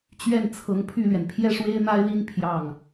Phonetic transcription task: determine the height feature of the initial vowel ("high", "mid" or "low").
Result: mid